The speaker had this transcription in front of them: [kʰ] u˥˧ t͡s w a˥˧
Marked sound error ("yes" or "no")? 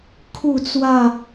no